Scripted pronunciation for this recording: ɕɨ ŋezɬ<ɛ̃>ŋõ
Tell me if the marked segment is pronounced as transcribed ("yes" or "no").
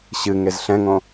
yes